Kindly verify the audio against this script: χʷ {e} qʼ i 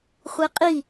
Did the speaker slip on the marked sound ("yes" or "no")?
no